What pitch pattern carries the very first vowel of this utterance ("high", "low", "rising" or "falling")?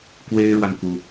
high